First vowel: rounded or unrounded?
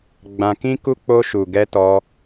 unrounded